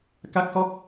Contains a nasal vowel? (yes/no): no